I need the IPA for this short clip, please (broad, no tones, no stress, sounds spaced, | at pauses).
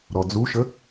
ɾ ɔ d͡z u ʃ ə